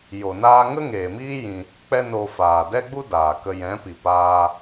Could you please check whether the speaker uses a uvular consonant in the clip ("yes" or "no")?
no